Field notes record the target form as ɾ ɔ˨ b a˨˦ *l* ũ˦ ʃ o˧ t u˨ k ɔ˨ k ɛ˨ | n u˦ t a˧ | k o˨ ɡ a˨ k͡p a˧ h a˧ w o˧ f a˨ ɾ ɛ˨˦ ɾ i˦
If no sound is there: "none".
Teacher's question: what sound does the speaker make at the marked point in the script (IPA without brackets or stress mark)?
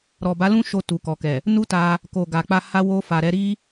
l